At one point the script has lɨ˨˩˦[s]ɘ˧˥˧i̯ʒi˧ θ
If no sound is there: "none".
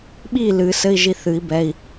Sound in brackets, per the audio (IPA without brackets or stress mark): s